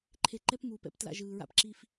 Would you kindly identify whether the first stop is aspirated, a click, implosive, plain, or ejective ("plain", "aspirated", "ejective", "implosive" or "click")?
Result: click